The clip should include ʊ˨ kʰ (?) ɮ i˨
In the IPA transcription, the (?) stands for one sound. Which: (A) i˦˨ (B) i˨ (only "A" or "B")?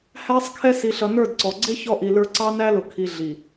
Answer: B